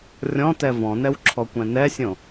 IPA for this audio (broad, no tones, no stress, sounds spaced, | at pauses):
rʲ ɔ̃ t ɛ v ɔ̃ n ɛ w ǁʰ ɔ kʷ ɛ̃ n ɛ sʲ õ